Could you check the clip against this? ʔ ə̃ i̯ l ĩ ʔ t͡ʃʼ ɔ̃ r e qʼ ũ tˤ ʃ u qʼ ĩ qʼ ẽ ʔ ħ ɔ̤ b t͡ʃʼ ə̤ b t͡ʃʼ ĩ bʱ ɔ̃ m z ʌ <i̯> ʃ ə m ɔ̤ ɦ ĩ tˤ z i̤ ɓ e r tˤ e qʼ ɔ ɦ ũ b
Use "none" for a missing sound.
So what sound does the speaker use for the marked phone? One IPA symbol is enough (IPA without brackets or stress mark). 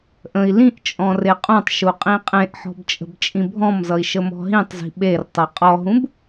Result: i̯